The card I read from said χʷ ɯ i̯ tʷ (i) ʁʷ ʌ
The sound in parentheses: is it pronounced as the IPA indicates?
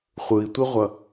yes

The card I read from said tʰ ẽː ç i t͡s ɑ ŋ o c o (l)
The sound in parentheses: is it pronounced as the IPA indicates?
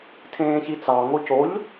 no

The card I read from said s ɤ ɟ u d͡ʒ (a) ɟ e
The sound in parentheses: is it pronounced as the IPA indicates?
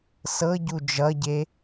no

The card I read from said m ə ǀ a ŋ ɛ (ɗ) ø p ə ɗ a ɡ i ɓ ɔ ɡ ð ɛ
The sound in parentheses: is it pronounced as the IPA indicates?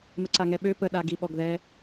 no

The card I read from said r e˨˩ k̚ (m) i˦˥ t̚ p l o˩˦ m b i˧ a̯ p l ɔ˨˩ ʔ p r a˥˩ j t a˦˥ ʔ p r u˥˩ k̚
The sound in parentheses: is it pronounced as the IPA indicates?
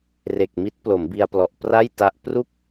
yes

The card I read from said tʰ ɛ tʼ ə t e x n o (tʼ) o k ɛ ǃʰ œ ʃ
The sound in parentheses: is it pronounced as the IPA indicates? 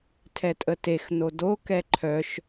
no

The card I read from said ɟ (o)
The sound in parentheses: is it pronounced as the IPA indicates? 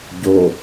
yes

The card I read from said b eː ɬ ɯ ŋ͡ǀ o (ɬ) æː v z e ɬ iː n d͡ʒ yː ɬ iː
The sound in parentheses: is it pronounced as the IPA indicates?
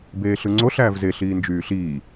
yes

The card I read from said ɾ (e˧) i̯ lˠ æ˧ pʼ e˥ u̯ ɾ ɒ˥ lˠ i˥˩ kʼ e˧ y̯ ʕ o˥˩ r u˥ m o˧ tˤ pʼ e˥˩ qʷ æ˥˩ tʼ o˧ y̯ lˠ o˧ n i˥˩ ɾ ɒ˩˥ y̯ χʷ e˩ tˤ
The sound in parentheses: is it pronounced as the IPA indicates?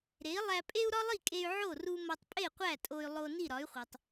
no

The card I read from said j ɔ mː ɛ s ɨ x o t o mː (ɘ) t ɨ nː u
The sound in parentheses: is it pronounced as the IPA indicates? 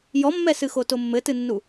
yes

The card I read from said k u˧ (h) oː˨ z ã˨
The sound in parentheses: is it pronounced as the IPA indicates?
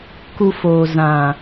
no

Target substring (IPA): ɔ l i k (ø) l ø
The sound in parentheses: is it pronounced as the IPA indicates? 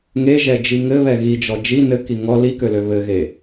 yes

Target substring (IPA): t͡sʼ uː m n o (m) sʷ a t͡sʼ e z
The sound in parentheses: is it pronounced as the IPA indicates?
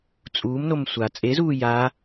yes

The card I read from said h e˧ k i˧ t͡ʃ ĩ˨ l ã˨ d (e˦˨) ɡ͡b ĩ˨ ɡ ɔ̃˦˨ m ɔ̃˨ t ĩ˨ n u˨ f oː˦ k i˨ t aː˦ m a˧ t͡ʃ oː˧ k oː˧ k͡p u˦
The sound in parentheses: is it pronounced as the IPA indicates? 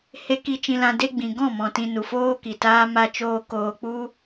no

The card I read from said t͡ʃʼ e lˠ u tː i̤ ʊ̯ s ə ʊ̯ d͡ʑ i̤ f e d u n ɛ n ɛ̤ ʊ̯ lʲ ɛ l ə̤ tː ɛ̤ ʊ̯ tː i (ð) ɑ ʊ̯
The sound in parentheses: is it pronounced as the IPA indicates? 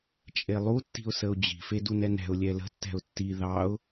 yes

